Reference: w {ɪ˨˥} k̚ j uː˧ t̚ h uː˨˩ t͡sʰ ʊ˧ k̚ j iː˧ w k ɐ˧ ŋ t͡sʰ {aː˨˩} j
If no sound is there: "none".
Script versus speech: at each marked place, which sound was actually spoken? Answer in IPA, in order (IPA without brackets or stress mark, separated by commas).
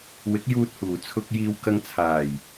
ɪ˨˥, aː˨˩